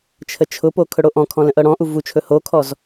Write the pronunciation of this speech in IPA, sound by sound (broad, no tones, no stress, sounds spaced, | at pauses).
t͡ʃʰ ə t͡ʃʰ ʊ p o kʰ ɵ ɽ o ʔ ɔ̃ kʰ ɔ̃ l ə̃ ʔ ɤ ɽ ɔ̃ ʔ u v u t͡ʃʰ ɵ h o kʰ ɔ z